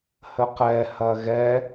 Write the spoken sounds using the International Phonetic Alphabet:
h ə q ɛ h ɐ ɣ ɛ

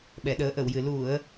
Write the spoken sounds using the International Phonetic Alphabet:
ɓ ɛ˨˩˨ ɗ əː˨˩˦ ʔ ə˨˩˨ w j ɨ˨˩ l u˨˩˨ ə̯

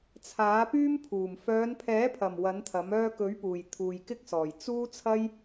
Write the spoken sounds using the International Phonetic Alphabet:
t͡sʰ aː˨˥ p yː˥ m pʰ uː˨˩ m f œː˨˧ n pʰ ɛː˨˥ pʰ ɐ˨˩ m w ɐ˨˥ n t̪ʰ ɐ˨˥ m œː˧ k ɵ˨˥ ɥ p uː˨˩ j t̪ʰ uː˨ j k ɪ˥ k̚ s ɔː˨˩ j t͡s uː˥ t͡sʰ ɐ˥ j

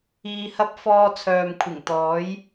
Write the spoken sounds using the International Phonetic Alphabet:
iː˧ h ɐ˥ p̚ f ɔː˧ t͡sʰ œː˨ m kʷʰ ɪ˨˩ ŋ t̪ ɔː˨˥ j

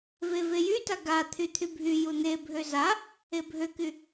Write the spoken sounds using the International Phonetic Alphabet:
v e v e j y t a ɡ a t̪ʰ y t̪ʰ y bʱ y j u n̪ e bʱ ø z a | e bʱ ø k y

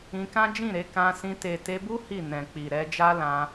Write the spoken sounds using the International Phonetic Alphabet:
ĩ˧ k ã˦ d͡ʒ ĩ˦˨ ɾ e˨˦ k ã˧ s ĩ˧ t e˨ t e˧ b u˦ h i˦˨ n ɛ̃˨ k͡p i˨ ɾ ɛ˧ d͡ʒ a˦ l ã˧

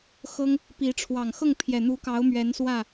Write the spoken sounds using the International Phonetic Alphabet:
x ɤ˦ ŋ | p i˨˦ ʈ͡ʂʰ w ɑ˨˩ ŋ x ɤ˥˨ ŋ pʰ j ɛ˨˩ n̪ u˨˦ k ɑ˨˦ ʊ̯ m ɥ ɛ˨˦ n s w ä˥˨

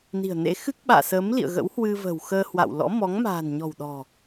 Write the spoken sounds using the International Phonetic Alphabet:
n i̤˨˩ ə̯ n ḛ˧˥ x ɨ˦˥ k̚ ɓ a̰ː˧˨ s əː˨˦ m l ḭ˧˨ ə̯ ɣ ə̰˧˥ w h w ɨ˧ v ə̤˨˩ w x əː˧ h w a̰˧˨ w l ɔ̰˧˥ m ɔ˨˦ ŋ m a̤ː˨˩ n ɲ ɔ̤˨˩ w ɗ ɔ̤˨˩

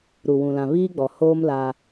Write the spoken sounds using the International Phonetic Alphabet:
ɾ u˨ w ũ˨ l ã˨ β iː˦ ɡ͡b ɔ˨ h oː˦ m l a˦

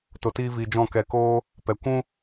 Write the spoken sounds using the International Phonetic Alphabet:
t o˨ t iː˧ v iː˨ d͡ʒ ɔ̃˦˨ k ɛ˧ k oː˦ | p ɛ˨ kʷ ũ˦

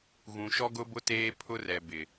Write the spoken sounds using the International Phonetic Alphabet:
ɣ ũ˨ ʃ ɔ˦ ɡ ʊ˦ b ʊ˦ t eː˦ pʰ ʊ˦ r ɛ˨ b ɪ˨

